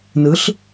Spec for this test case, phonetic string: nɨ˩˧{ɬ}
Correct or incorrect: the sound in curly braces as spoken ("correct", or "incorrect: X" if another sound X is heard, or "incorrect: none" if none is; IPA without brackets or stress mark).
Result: correct